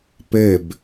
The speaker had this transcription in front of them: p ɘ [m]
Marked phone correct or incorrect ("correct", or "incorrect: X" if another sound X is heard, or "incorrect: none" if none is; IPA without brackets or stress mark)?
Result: incorrect: b